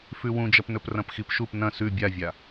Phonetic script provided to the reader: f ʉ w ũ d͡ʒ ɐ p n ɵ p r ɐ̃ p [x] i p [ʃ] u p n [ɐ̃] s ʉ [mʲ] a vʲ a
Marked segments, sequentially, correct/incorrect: correct, correct, correct, incorrect: bʲ

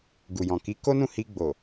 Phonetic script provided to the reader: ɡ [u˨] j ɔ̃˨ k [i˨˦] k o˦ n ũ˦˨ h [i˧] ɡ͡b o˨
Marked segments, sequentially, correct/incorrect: correct, correct, correct

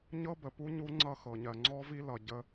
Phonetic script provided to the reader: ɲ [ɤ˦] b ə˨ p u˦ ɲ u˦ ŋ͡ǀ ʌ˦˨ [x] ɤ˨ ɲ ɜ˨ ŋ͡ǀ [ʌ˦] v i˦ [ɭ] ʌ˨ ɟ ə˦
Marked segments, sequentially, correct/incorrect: correct, correct, incorrect: ɔ˦, incorrect: l

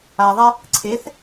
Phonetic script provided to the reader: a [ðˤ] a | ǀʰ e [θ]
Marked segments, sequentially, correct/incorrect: correct, correct

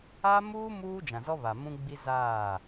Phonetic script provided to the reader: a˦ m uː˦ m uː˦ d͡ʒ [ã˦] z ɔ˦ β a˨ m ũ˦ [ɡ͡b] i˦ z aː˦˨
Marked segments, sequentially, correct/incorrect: incorrect: ã˨, correct

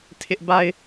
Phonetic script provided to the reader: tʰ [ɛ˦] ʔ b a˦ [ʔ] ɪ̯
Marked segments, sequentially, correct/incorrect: incorrect: ɪ˦, incorrect: none

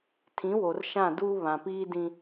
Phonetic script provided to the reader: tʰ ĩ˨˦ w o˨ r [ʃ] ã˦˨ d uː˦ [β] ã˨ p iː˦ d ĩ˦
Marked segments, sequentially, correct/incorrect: correct, correct

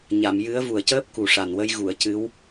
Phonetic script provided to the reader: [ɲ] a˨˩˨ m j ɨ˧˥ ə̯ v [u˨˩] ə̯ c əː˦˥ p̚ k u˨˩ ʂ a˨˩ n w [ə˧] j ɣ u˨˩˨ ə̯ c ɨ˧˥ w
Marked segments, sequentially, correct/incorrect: correct, correct, correct

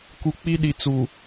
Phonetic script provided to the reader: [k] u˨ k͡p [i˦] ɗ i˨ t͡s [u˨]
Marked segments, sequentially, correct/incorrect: correct, correct, correct

